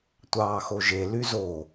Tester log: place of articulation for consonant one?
alveolar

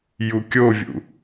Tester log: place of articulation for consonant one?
palatal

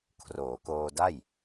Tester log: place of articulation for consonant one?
velar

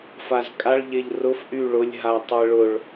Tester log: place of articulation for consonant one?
labial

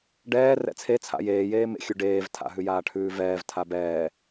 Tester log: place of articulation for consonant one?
retroflex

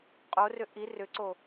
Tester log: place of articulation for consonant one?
uvular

